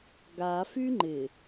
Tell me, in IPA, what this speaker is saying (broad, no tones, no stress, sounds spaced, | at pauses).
ɡ a f y ŋ͡ǃ ɪ